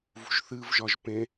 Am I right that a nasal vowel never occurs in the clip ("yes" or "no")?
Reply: no